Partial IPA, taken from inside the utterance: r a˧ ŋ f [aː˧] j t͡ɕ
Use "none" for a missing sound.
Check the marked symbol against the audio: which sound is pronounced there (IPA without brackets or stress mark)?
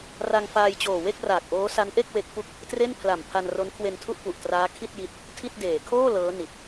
aː˧